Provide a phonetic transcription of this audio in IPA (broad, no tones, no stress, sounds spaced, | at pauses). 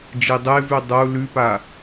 d͡ʒ i dˤ e v ʉ dˤ o u̯ l ʉ p a